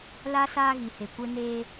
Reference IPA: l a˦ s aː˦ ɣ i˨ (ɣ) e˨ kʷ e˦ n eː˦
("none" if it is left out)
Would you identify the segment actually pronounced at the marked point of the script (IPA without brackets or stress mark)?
h